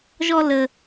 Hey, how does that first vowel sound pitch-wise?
high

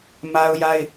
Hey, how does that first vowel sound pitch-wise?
high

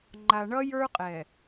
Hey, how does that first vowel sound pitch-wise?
low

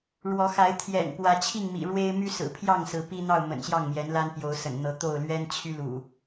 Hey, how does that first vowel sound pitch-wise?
rising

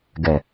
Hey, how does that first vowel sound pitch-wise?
low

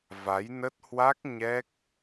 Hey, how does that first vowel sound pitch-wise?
rising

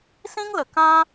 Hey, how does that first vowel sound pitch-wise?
high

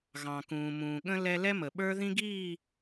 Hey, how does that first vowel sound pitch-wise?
low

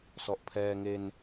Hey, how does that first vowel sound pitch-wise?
low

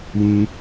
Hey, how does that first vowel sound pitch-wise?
high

